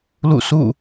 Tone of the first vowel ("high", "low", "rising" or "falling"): falling